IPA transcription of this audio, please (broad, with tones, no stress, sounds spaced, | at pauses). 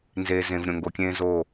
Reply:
n z eː˨ z ẽ˨ v ɾʲ õ˨ ŋ ɡ o˨ kʲ ẽː˦ z o˦˨